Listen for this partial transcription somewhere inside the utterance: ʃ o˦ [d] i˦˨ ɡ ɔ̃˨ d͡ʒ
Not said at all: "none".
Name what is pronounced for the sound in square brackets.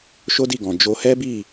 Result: d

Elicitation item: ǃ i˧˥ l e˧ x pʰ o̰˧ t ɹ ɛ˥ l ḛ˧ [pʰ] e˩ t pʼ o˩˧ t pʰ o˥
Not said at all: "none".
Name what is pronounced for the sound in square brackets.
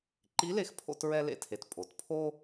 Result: tʰ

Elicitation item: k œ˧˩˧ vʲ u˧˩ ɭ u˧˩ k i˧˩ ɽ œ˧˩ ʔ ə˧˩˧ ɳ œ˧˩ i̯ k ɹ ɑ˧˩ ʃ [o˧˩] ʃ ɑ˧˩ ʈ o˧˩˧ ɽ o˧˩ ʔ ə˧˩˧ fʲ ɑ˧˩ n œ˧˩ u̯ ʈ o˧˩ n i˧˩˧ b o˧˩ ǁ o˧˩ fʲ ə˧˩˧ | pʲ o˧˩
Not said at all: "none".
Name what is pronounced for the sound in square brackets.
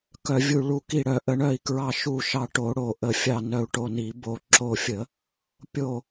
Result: u˧˩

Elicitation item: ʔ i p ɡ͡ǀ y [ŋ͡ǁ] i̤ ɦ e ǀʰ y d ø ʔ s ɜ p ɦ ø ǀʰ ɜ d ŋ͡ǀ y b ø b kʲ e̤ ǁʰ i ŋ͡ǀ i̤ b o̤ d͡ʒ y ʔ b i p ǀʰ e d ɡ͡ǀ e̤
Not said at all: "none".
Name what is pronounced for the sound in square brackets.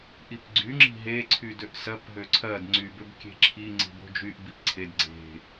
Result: ŋ͡ǁ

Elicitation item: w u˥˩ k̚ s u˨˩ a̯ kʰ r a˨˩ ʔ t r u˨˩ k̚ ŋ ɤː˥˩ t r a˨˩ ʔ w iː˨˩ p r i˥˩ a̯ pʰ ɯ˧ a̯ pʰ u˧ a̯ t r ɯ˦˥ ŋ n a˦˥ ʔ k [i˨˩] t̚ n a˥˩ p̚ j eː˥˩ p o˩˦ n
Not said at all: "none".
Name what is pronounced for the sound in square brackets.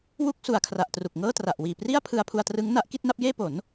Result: i˥˩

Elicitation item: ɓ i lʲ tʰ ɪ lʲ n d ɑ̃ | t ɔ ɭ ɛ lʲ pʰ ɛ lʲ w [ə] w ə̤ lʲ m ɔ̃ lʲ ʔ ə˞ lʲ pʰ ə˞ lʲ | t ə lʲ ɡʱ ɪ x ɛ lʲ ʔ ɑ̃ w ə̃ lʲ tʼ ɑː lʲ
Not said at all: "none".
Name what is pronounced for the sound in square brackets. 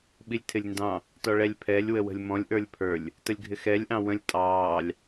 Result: ə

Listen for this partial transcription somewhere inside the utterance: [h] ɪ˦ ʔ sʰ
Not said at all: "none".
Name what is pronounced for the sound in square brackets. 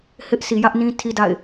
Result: h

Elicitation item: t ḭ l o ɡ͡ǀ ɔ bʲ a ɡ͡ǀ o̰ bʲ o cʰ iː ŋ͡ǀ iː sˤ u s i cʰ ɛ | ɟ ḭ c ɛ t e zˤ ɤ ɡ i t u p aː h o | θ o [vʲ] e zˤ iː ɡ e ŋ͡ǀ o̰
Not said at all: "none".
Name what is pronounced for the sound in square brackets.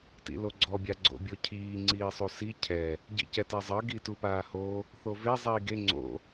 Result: v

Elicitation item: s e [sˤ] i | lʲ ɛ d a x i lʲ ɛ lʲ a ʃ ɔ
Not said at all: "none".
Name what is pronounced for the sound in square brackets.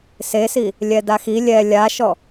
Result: s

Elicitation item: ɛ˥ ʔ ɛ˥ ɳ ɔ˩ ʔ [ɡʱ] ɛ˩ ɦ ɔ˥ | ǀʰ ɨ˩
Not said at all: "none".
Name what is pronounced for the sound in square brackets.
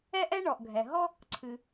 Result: ɡʱ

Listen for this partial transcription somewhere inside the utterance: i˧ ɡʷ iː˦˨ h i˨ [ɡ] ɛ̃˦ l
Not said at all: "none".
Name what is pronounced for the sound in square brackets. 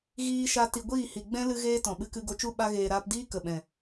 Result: ɡ͡b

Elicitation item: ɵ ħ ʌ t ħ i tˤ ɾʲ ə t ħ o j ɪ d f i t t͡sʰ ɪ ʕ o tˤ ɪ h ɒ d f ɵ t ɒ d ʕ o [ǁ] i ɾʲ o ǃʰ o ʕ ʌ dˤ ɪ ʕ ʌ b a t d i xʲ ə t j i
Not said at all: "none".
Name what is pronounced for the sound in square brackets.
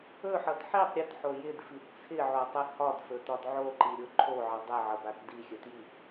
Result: ǃ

